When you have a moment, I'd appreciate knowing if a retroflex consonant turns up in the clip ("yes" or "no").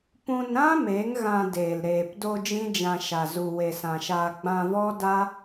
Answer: no